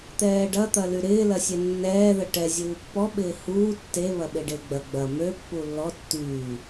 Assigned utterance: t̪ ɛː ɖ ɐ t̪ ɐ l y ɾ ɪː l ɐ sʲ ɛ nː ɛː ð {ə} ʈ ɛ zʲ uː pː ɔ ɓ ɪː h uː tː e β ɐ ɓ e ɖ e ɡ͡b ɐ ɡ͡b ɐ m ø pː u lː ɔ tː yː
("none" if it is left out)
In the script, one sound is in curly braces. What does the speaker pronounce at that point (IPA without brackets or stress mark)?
ə